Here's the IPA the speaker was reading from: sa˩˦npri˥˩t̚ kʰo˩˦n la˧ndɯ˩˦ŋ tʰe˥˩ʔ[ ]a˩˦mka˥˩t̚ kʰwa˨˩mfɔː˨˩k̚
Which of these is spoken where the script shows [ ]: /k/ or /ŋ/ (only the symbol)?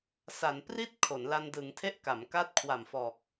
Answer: k